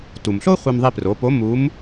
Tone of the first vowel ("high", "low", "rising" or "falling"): low